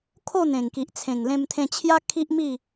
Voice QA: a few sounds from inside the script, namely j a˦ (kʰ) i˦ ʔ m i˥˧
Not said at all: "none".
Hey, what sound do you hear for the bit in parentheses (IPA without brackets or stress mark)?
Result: kʰ